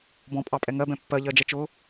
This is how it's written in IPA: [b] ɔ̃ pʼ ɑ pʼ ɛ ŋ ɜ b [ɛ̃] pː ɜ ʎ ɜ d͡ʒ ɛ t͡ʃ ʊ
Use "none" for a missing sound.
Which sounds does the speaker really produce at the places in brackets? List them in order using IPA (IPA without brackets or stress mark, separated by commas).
b, ɛ̃